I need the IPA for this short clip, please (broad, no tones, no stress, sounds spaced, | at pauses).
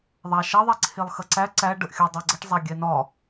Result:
ðˤ a ʃ ɐ ðˤ ɛ ǀʰ e lˠ x ɐ ǀ æ ǀ æ ɖ ə ʔ xʲ ɜ dˤ ɜ ɡ͡ǀ ə ʈ zˤ æ ɡʲ ɛ n ɒ